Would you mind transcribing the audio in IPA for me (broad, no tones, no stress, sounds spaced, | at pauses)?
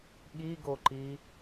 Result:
ɠ i ɡ o ǃ i